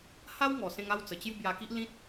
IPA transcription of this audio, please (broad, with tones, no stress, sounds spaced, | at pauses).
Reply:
h a˦ w ŋ ɔ˨˩ s ẽ˧ ŋ a˥˧ w t͡s ə˨˩ t͡ɕ j u˥˧ b j a˧ k i˦ ʔ l ĩ˦ t̚